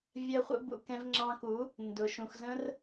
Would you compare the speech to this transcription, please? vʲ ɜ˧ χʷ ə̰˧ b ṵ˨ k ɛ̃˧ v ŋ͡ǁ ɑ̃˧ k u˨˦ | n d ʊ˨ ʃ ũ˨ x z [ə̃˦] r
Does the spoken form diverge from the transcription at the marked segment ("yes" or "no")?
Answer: no